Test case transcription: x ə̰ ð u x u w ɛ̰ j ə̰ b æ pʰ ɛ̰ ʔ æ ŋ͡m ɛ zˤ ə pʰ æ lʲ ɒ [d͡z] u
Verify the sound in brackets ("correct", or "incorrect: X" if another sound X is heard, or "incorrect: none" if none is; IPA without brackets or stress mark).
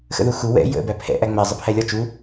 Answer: incorrect: t͡ʃ